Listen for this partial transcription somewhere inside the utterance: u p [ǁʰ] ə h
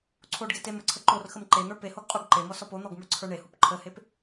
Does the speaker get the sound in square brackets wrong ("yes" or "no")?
yes